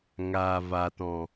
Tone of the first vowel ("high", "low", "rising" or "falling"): low